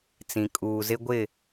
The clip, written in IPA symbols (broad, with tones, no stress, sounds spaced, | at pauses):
t͡s ĩ˨ kʼ uː˨ z ɪ˦ ɡʷ ɪ˦˨